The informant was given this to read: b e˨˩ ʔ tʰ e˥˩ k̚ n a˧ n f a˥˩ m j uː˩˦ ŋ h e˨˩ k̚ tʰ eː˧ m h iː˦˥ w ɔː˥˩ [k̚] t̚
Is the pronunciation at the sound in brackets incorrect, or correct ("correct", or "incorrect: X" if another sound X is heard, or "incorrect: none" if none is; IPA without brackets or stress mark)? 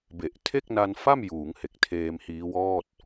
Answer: incorrect: none